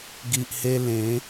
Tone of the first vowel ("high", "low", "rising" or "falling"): low